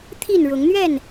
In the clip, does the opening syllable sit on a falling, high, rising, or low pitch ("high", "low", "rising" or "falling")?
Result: falling